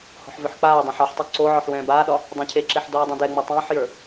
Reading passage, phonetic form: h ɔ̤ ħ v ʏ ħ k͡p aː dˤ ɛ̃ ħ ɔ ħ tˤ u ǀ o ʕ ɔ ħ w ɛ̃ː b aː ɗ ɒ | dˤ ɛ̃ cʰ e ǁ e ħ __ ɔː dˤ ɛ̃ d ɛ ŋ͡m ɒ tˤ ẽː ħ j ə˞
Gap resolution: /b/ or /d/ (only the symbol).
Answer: d